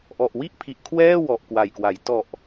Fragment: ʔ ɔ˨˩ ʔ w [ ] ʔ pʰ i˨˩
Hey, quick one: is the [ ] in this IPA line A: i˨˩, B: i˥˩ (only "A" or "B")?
B